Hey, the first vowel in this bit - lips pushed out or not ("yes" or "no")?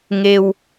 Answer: no